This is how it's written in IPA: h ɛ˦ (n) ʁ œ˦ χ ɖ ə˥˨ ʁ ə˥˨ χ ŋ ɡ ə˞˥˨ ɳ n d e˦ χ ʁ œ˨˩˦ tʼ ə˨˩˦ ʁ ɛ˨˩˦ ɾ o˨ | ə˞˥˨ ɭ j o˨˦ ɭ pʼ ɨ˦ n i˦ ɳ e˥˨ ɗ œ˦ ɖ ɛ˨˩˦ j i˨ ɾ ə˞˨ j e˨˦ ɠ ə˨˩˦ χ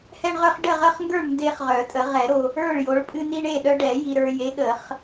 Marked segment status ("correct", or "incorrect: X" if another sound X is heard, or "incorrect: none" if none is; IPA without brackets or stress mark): incorrect: ɳ